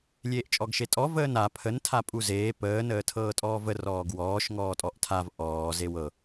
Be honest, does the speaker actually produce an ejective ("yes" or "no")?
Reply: yes